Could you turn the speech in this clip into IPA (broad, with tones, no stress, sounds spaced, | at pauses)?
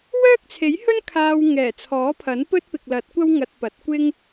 w œː˥ k̚ t͡sʰ e˨˥ j h ɵ˥ n kʰ aː˧ w ŋ ɛː˨˩ t͡sʰ ɔː˨˥ pʰ ɐ˨˥ n p ɵ˥ t̚ p ɪ˨ k̚ l ɐ˨˥ t̚ kʷ ɐ˥ w ŋ ɐ˧ t̚ p ɐ˨˥ t̚ kʷ ɪ˥ ŋ